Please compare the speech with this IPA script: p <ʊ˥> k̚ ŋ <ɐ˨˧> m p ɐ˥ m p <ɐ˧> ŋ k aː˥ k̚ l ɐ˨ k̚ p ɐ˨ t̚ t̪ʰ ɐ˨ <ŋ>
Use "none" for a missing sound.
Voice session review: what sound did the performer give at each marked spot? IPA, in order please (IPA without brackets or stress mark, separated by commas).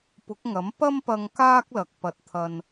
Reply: ʊ˨˥, ɐ˨˥, ɐ˧, n